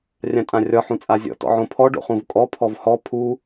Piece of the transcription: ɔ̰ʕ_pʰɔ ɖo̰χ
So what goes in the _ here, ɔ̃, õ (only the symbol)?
õ